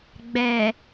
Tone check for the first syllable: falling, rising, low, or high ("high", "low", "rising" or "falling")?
low